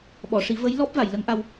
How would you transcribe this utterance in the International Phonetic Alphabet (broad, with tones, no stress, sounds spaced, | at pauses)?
ɓ ɔ˨˩˨ ʂ i˨˩˦ v ə˧˥ j l ɔ˦˥ p̚ v a˨˩˨ j l ə˧˥ ŋ ʔ a˧ w